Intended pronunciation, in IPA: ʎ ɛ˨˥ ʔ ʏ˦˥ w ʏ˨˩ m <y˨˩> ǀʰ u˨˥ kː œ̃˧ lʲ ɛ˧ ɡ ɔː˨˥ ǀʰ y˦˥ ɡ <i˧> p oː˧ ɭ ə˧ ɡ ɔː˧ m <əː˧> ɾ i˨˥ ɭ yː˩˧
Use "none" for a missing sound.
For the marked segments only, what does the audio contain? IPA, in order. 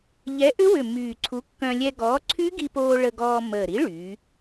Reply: yː˨˩, i˧, əː˨˩

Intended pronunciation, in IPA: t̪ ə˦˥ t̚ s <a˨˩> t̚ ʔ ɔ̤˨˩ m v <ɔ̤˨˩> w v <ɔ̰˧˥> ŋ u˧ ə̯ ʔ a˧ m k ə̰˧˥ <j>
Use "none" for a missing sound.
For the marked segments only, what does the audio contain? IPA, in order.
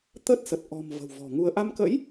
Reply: ə˨˩, ə̤˨˩, ɔ̤˨˩, j

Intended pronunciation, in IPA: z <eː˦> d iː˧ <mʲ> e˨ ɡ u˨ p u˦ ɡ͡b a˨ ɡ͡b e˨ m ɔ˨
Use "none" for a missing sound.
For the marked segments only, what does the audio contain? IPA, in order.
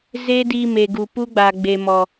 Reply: eː˦, m

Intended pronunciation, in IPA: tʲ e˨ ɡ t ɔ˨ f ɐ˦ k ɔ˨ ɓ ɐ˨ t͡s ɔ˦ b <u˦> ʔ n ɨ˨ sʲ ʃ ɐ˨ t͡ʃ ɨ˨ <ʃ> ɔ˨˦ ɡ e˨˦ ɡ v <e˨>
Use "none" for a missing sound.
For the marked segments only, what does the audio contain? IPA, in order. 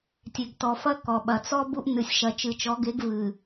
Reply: u˦, t͡ʃ, ɨ˨

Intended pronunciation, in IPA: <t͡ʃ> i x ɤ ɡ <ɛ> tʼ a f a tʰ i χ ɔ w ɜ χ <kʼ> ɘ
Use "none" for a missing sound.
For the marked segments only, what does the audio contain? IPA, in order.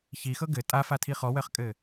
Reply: ç, ɘ, kʼ

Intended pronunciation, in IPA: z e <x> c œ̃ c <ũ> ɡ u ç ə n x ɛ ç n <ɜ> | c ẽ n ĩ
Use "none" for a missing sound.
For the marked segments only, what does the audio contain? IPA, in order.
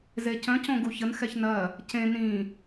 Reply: none, õ, ɜ

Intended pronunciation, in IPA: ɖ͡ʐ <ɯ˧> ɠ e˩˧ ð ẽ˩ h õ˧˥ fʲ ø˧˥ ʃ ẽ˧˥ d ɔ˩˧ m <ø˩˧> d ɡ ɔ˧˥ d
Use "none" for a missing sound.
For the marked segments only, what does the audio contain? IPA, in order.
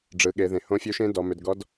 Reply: ɯ˩˧, ø˩˧

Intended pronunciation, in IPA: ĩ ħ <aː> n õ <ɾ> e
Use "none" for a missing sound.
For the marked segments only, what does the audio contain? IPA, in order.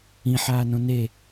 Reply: aː, n

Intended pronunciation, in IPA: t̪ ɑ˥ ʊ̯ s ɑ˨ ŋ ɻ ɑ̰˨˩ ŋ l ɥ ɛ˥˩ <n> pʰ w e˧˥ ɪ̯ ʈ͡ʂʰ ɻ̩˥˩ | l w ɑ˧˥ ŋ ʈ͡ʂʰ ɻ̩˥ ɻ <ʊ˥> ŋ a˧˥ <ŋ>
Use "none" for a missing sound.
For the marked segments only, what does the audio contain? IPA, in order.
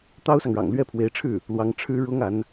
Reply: none, ʊ˥, n

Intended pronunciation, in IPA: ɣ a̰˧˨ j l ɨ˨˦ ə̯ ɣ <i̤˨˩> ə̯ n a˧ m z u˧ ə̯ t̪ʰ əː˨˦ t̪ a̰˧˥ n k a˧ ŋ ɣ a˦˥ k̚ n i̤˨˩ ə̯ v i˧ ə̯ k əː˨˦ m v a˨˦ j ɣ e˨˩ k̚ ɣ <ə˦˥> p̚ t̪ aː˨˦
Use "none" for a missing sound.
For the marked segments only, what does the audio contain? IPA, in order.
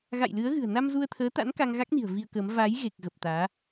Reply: ɨ̤˨˩, ə˨˩

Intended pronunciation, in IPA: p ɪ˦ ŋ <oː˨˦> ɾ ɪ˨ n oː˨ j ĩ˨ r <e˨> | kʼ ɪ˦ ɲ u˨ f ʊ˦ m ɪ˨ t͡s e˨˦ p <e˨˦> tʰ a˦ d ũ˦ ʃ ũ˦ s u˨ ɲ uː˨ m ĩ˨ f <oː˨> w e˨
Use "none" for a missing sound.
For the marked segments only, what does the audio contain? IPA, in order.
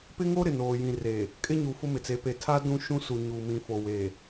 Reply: oː˦, e˨, e˨, o˨

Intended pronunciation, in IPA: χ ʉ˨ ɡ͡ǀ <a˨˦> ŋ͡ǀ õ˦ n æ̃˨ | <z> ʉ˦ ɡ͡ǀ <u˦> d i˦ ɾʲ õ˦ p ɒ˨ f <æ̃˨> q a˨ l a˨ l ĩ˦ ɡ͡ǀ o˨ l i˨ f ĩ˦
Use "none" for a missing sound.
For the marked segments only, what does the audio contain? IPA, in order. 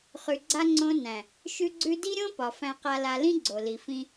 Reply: a˦, ʃ, ʉ˦, æ̃˨

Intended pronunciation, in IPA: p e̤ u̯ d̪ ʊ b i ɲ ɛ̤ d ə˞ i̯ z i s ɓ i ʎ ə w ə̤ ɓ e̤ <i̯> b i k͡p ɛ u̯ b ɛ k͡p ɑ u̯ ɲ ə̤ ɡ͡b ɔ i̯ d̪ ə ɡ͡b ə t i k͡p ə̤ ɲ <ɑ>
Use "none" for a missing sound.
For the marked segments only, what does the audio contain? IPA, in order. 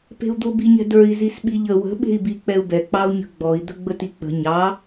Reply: i̯, ɑ

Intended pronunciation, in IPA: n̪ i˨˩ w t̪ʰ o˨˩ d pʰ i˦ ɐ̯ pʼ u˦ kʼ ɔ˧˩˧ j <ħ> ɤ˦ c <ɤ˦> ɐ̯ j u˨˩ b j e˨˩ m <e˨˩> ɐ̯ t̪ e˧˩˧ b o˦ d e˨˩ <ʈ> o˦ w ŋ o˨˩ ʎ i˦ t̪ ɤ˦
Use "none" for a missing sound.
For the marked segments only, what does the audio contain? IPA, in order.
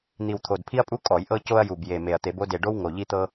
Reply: ʔ, o˦, e˨˩, ɖ

